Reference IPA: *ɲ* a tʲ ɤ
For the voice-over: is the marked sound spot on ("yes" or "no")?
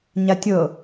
yes